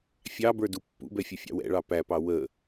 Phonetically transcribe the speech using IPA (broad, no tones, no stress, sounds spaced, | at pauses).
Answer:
fʲ ɑ b ə˞ d u pː ṵ b ɛ fʲ ə fʲ ɑ̰ w ɛ̰ ɭ ɑ p æ p ɑ w ə